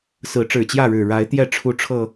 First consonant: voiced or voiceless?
voiceless